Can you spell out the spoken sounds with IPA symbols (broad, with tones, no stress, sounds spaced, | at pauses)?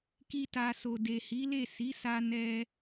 k i˦ t a˧ s o˨ d e˨ h i˨˦ l e˦˨ s i˨˦ s a˧ n ɛ˦